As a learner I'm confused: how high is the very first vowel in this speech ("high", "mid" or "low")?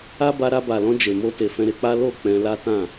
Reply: low